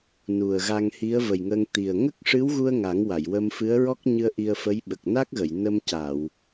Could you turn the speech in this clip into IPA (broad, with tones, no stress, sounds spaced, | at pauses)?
n u˨˩ ə̯ ɣ a˧ ŋ h i˧˥ ə̯ v ə˨˩ j ŋ ə˧ ŋ t̪ i˨˩ ə̯ ŋ ə˦˥ k̚ ʂ ɨ˧˥ w ɣ u˧ ə̯ ŋ a˨˩˦ ŋ w a˨˩˨ j w ə˧ m f ɨ˧˥ ə̯ ɹ ɔ˦˥ k̚ ɲ ɨ˧ ə̯ ʔ i˧ ə̯ f ə˧˥ j ɓ ə˨˩ k̚ n a˦˥ k̚ ɣ ə˨˩˨ j n ə˧ m c a˨˩˨ w